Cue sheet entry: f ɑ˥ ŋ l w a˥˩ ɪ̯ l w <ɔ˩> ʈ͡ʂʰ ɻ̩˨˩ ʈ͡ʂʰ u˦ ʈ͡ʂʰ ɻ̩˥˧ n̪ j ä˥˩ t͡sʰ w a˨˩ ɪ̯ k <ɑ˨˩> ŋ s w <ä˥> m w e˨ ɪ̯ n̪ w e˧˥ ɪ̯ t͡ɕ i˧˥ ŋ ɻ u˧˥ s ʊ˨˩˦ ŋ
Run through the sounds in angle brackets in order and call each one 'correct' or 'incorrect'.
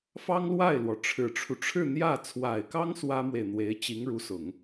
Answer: correct, incorrect, correct

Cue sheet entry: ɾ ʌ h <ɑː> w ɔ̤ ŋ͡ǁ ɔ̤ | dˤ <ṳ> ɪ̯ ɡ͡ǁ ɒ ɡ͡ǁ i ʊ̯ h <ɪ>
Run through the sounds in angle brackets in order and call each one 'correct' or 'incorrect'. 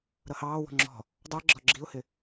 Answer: correct, incorrect, correct

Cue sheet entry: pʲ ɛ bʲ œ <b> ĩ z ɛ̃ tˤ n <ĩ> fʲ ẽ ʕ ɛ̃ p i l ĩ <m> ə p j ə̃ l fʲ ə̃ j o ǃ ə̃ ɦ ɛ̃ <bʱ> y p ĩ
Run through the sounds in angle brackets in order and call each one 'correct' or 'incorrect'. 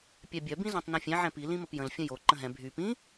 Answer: correct, correct, correct, correct

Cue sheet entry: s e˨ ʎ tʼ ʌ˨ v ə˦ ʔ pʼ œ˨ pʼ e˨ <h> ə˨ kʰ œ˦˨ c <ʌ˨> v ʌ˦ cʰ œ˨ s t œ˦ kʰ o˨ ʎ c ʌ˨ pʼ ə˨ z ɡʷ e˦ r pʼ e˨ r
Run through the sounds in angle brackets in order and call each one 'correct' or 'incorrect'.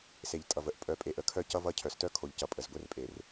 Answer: incorrect, incorrect

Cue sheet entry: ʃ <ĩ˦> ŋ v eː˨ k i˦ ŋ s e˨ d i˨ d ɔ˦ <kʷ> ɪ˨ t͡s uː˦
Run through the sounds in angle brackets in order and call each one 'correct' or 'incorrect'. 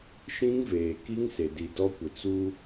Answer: correct, correct

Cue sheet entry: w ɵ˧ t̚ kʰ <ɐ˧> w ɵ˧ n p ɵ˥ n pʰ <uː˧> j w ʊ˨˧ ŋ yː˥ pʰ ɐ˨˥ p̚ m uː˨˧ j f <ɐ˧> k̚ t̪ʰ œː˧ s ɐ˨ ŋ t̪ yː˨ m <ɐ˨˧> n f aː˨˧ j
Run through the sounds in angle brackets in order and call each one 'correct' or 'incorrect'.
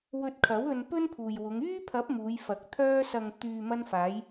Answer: incorrect, incorrect, incorrect, incorrect

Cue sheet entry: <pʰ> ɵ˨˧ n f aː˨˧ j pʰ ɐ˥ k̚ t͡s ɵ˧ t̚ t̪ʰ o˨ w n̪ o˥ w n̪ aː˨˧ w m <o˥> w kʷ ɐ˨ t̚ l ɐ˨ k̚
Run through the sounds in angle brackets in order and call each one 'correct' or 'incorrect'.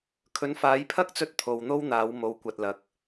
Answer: incorrect, incorrect

